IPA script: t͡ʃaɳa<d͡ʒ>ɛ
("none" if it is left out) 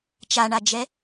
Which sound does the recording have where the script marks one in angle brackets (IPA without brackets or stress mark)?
d͡ʒ